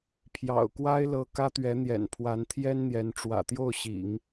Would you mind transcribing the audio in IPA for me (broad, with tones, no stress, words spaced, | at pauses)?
pʰjɑ̰˨˩ʊ̯ kwa˥ɪ̯lɤ˧˥ kä˥t̪ɥɛ˧˥n̪jɛ̰˨˩n pʰwa˧˥nt̪ʰjɛ˥nn̪jɛ˧˥n ʈ͡ʂwä̰˨˩t̪jo˥˩ʊ̯ɕḭ˨˩˦ŋ